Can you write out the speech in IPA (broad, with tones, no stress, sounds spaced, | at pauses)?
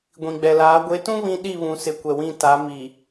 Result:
ɡʷ ĩ˨ ɡ͡b ɛ˨ l aː˨˦ ɡʷ e˨˦ t ũ˦ β ĩ˦ ɗ i˦˨ β ũ˨ s ɪ˨˦ kʷ ɛ˨ w ĩ˦˨ t a˨˦ m i˨